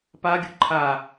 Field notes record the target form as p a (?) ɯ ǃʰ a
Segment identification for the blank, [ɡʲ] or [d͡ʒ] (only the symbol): ɡʲ